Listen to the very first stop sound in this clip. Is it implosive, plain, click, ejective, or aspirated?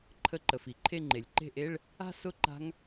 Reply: click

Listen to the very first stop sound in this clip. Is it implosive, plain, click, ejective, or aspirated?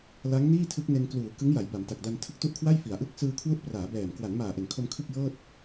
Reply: aspirated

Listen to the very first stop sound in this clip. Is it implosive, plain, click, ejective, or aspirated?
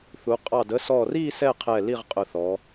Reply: ejective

